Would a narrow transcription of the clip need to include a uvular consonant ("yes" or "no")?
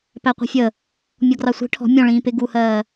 yes